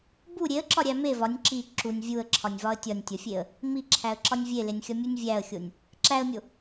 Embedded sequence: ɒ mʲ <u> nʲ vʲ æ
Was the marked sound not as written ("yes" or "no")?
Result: no